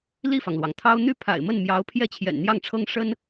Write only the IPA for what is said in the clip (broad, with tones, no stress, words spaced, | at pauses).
li˥˩fɑ˩ŋlwɑ˩ŋt̪ʰɑ˥ʊ̯ n̪y˥˩ pʰa̰˨˩ɪ̯mə˥˩n mjɑ˧˥ʊ̯ pʰjɛ˥˩t͡ɕʰjɛ̰˨˩nn̪jɑ˥˩ŋʈ͡ʂʰɤ˥ŋ ʂə˥n